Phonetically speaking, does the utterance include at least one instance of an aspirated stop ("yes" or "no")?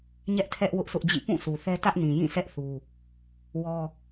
yes